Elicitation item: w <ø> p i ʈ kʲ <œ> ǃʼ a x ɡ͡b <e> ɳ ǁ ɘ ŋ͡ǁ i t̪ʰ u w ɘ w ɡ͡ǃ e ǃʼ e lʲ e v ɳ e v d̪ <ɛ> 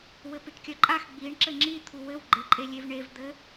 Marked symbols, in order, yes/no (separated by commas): no, yes, no, no